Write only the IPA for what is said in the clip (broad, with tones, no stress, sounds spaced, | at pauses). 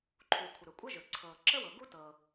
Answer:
ǃʰ u˩ kʷʰ ə˩ ɾ ɵ˩ kʷʼ ɤ˥ ʒ ɵ˩ ǀʰ ɤ˩ ǁ ə˥ w ɤ˩ ɡ u˥ t ɤ˩